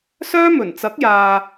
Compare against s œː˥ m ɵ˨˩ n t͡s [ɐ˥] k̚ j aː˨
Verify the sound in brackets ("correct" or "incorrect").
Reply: incorrect